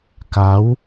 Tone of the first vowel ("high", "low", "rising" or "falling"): rising